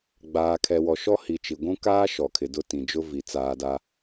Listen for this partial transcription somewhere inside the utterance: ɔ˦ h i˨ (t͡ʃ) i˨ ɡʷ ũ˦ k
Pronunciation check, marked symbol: correct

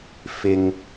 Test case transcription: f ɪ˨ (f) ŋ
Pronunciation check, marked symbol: incorrect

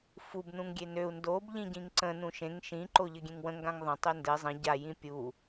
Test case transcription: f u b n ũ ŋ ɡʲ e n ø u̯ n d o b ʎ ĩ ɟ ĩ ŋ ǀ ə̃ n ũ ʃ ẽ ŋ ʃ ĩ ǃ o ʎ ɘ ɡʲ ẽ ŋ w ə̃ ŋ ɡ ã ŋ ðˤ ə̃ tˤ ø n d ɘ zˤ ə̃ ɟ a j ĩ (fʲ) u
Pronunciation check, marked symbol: incorrect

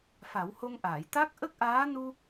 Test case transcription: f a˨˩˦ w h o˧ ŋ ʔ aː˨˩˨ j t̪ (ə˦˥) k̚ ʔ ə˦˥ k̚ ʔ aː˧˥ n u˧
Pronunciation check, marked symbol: incorrect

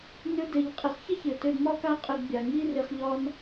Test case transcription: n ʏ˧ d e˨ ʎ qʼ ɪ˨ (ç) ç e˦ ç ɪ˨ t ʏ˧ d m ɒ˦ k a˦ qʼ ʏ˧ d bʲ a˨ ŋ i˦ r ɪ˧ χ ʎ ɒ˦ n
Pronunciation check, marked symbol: incorrect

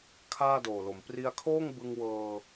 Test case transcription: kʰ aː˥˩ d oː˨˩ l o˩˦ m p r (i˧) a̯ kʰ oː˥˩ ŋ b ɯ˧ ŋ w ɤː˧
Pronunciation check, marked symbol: correct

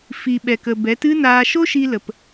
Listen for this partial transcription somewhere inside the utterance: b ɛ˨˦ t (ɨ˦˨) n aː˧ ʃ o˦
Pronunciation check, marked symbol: incorrect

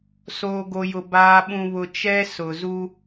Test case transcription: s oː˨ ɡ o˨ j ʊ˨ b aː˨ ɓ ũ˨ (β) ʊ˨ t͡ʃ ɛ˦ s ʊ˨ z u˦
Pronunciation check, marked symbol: correct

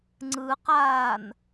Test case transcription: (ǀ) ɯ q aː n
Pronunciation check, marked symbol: incorrect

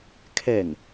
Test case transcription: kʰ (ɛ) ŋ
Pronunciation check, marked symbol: correct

